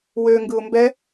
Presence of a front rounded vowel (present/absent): present